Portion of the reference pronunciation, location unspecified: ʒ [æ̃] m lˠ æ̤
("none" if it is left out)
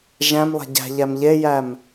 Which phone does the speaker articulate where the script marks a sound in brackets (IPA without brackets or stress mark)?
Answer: æ̃